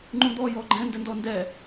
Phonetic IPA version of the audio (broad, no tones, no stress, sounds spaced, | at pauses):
ŋ͡ǃ ũ d̪ ɔ j ɔ ɡ͡ǃ ɛ̃ n d ɘ n d ɔ n d ɛ